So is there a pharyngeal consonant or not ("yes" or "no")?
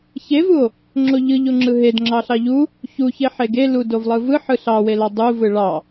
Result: yes